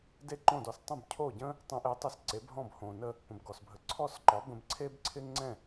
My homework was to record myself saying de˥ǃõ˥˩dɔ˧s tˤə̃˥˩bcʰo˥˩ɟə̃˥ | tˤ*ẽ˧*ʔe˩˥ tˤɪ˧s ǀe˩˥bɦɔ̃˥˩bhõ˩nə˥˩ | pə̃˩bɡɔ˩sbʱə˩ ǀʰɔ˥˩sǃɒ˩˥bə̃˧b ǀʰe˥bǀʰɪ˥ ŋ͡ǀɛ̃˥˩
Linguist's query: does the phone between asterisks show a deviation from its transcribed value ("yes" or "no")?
no